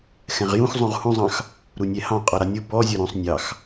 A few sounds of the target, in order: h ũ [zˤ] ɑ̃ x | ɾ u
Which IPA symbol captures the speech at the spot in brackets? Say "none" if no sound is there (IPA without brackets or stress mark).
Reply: zˤ